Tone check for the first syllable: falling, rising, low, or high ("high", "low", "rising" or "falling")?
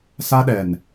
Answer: high